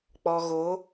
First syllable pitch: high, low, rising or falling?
low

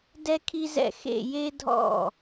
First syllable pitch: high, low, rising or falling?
high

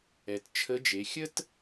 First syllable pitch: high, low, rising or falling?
low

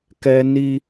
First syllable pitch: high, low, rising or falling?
high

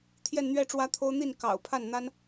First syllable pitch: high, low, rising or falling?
falling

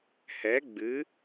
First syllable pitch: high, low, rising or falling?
rising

